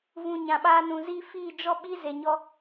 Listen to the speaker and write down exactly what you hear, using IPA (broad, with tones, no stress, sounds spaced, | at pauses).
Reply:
v ũ˨ ɲ ã˨ ɓ aː˧ n ũ˨ z iː˦ f iː˦˨ d͡ʒ ɔ˦ ɓ i˦ z e˧ ɲ ɔ˦